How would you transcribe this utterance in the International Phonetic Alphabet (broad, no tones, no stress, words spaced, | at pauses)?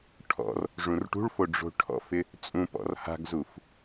ʈʰɔ̰r | ʐũrʈṳɭfo ɖ͡ʐo̤ʈʰɔ̰fɪ | t͡sʼũpɔ̰r ha̤ɡzuf